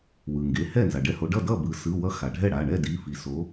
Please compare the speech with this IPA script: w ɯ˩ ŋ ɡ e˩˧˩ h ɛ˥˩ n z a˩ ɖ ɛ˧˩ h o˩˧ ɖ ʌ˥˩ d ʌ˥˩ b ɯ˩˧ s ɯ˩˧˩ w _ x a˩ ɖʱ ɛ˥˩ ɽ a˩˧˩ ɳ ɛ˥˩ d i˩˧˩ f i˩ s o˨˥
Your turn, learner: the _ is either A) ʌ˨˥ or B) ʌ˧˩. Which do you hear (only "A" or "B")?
A